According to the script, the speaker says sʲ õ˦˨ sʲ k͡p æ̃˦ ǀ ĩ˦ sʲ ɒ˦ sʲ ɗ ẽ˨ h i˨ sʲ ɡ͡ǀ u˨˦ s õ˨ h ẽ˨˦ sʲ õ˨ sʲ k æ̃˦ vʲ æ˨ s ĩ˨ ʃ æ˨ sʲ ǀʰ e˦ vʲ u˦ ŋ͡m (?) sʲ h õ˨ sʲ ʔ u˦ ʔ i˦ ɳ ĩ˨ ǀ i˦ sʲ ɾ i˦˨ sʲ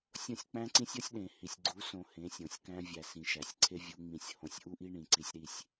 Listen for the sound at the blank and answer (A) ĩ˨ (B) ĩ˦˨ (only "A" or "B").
B